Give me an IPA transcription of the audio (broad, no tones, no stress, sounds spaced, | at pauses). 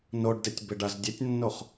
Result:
n o ɖ d e tʲ b ɪ ɖ a z dʲ e tʲ nː o χ